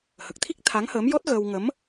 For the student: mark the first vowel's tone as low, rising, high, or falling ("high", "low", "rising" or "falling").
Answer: low